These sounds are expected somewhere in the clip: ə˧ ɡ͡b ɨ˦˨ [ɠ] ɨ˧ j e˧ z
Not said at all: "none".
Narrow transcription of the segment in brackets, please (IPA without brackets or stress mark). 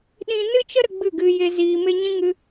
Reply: ɡ